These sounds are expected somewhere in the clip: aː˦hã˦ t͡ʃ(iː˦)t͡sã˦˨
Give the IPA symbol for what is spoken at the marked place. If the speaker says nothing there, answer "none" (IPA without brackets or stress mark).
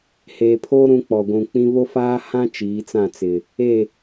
iː˨˦